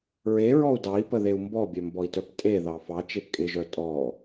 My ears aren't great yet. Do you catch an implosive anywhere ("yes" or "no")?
no